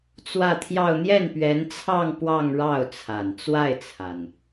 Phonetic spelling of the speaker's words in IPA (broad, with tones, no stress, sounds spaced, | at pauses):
t͡s w ä˥˧ t̪ʰ j ɑ˥˧ ʊ̯ n̪ j ɛ˥˩ n p ɥ ɛ˧˥ n t͡sʰ ɑ˥˧ ŋ p w ɑ˥˧ ŋ ɻ ɑ˥˩ ʊ̯ t͡sʰ a˨˩ n t͡s w a˥˩ ɪ̯ t͡sʰ a˩ n